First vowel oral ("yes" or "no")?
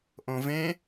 no